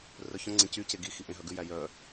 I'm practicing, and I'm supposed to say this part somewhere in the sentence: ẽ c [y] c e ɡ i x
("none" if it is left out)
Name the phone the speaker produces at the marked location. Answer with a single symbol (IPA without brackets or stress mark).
y